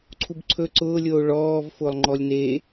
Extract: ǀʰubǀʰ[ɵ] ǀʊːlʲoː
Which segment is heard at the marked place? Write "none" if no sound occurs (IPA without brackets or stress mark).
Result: ɵ